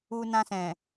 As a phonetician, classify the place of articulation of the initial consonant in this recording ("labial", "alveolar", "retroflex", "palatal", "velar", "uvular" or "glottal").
alveolar